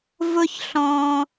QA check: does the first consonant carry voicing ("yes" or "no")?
yes